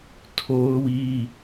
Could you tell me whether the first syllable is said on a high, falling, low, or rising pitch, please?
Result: high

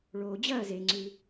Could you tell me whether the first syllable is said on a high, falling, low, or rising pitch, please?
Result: low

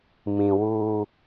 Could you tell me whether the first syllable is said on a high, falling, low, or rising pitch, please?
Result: low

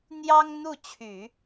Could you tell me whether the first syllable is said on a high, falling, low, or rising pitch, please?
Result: high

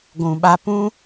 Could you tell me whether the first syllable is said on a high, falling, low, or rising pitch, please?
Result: low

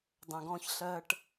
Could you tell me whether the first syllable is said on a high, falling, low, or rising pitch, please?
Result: low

